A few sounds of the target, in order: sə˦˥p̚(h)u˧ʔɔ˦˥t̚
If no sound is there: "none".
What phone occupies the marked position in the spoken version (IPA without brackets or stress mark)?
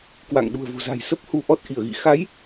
h